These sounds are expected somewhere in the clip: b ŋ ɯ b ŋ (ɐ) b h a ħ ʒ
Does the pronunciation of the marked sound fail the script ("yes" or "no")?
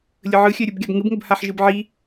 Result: yes